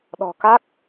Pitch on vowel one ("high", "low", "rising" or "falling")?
low